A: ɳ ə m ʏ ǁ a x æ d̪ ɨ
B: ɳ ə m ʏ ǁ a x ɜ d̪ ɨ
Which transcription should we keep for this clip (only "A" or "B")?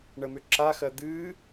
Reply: B